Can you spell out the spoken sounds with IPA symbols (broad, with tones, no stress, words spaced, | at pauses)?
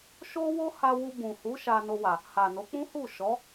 ʃo˦wo˦ha˧ wu˧bũ˨ hu˨˦ ʃa˧no˧wa˨ | ha˨ no˨˦k͡pũ˦hu˦˨ʃɔ˨˦